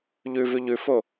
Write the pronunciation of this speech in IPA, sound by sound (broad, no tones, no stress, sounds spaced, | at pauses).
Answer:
ʎ ʉ v ʉ ʎ ʉ f o